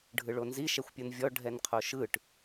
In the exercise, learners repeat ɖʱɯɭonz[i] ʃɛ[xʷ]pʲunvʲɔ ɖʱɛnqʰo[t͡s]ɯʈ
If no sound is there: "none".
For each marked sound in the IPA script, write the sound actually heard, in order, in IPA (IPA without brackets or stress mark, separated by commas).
i, xʷ, ʃ